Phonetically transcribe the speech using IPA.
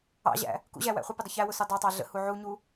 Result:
ɑ̰ ʑ æ̰ | k ṵ ʑ æ w æ̰ χʷ ɪ p ɪ dˤ ə ç æ w ʊ s u dˤ ɑ tˤ ɑ ɮ ə̰ h u ʕ u ɲ u

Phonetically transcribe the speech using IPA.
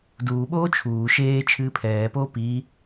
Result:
d uː ɓ oː t͡ʃʰ uː ʃ eː t͡ʃʰ ɨː pʰ ɛː p oː p iː

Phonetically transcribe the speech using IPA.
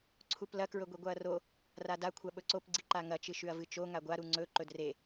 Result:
ǀʰ u p l ɐ k ɹ ɵ ɡʷ i ɡʷ a ɐ̯ r o | r a d a kʷʰ a ɓ ɵ ǀ o p ɡ͡ǀ i ǃ a ŋ ɐ t͡ʃ ɨ ʃ ʉ ɐ̯ v ɨ t͡ʃ o ŋ a ɡʷ a ɾ u ŋ͡ǀ ɵ ǃ ɵ d r e

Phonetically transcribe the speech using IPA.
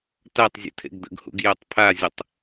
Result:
t a tˤ zʲ ṵ tʰ ḛ ɡ d̪ ə̰ ɡ h ṵ ɡ j œ tˤ pʰ a zʲ ə tˤ

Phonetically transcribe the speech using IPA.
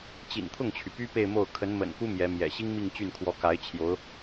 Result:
t͡ɕ ḭ˨˩ n t̪ʰ ʊ˥˩ ŋ t͡ɕʰ y˩ p y˥ p e˥˧ ɪ̯ m o˥˩ ʊ̯ kʰ ə˧˥ n m ə̰˨˩ n k u˥ m j ɛ˧˥ m j ɛ̰˨˩ ɕ i˥ ŋ m i˥˧ ŋ t͡ɕ y˥˩ n kʰ w ɔ˧˥ k a˧˥ ɪ̯ t͡ɕʰ j o˧˥ ʊ̯

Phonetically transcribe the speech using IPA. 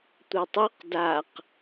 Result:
tʷ ɤ tˤ u q d a q

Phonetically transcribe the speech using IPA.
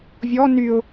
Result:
vʲ ɔ n y ʊ̯

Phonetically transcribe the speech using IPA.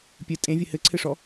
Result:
pʲ ɘ tʼ ẽ vʲ ɘ h ɘ ǀʰ ɘ ʂ ɔ

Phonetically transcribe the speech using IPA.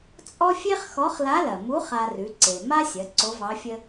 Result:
t͡sʼ ɔ˥ fʲ e˥ χ x ɔ˧˥ χ l a˧˥ l ɐ˩ m u˧˥ χ a˧ r ʉ˩˧ ǀ e˩ m a˥ sʲ ɐ˩˧ ǀ o˧˥ v ɑ˧˥ fʲ ə˥

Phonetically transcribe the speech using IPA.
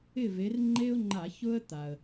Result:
ɪ˥˨ v e˨˦ r ŋ͡ǃ e˥ ʊ̯ ŋ͡ǃ a˧˩˧ ç ʊ˥ ə̯ t̪ a˩ ə̯

